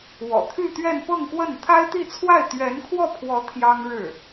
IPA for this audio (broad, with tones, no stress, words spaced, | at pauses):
wɔ̰˨˩t̪ʰy˥˧t̪ɥɛ˥˧n pɤ˥˧ŋkwə˥˩n t̪ʰa˥ɪ̯t̪i˥˧t͡sʰwa˥˩ɪ̯ t̪ɥɛ˧˥nkʰwɔ˥˩pʰwɔ˧˥ t̪ʰjɑ˥ŋɻɻ̩˥˩